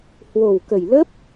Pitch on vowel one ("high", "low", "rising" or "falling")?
low